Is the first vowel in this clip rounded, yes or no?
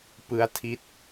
no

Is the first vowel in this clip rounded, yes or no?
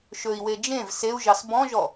yes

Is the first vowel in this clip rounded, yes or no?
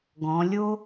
yes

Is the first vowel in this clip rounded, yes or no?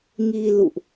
no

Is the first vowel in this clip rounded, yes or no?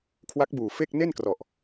no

